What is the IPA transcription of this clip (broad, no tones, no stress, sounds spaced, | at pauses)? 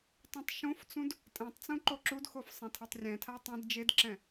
tˤ ĩ tˤ ʃ õ f t͡s ũ d | tʼ ɛ̃ tˤ t͡s ũ ǃ o ǁ u d x o f sˤ ẽ tʰ ʌ tˤ rʲ ɛ̃ tʰ a tˤ ĩ d d͡ʒ e d ǁ ɛ̃